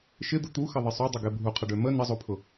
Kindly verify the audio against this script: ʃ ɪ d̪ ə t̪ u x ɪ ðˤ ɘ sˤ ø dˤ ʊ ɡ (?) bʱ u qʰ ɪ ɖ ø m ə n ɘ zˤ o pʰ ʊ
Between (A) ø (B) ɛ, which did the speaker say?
B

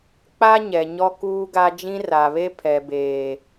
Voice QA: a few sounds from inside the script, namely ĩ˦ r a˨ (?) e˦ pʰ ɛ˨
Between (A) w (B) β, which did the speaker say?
B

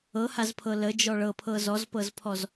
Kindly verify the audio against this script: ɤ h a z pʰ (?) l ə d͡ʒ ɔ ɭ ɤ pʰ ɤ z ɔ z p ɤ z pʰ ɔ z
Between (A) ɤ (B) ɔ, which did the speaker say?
A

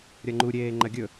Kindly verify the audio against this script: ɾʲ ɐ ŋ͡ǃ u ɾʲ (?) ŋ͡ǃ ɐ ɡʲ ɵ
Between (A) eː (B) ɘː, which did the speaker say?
A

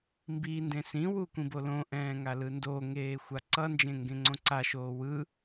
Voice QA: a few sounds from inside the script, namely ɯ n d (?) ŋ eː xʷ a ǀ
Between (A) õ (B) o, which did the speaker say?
B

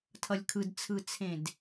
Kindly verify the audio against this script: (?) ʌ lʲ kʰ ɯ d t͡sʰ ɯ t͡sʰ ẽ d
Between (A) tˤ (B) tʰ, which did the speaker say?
B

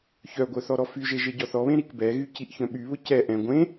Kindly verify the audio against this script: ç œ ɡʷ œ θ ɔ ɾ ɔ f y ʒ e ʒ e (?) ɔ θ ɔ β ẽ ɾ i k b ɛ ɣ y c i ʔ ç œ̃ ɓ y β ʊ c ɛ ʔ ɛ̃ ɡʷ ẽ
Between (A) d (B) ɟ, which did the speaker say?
B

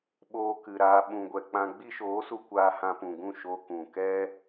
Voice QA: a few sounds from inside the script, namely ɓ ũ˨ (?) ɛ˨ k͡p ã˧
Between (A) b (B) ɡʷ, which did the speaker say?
B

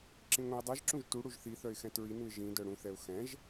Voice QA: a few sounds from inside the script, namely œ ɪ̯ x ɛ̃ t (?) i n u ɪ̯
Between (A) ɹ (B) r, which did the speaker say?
A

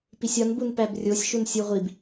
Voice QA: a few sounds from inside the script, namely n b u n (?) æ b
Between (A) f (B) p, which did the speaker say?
B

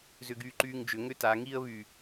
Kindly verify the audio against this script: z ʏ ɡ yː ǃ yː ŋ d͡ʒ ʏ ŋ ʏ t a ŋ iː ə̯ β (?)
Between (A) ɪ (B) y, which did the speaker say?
B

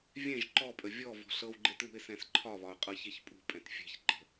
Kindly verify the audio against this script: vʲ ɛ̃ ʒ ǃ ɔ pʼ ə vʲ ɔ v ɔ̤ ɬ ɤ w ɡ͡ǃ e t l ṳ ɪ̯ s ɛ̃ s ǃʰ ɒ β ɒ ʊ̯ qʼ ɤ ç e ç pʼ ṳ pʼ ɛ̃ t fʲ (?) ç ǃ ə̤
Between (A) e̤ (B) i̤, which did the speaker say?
A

